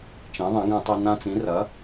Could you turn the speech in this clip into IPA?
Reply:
t͡ʃ ẽ˩˥ ðˤ ẽ˩˥ ɡ ẽ˧ tˤ o˧ n ã˧ t͡s ĩ˩˥ r ɐ˩˥

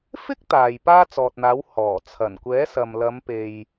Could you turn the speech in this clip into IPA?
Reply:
f ɪ˥ k̚ t̪ aː˨ j p aː˥ t͡s ɔː˨ t̚ n̪ aː˨˥ w h ɔː˨˩ t͡sʰ ɐ˨˩ n kʷ ɛː˨˥ s ɐ˨ m l ɐ˨˧ m p e˨ j

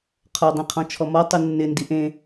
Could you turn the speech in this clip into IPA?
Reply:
qʰ ɔ dˤ ĩ qʰ ɔ̃ t͡ʃʰ ɔ m ɔ tˤ u nː ɪ n d i ʔ ẽ

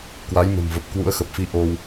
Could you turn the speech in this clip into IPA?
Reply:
k w a˨˦ j m ə̤˨˩ m v ə˨˩ p̚ k w ṵ˧˥ ə̯ x ə˨˩ p̚ f i˧ ʔ o˧ w

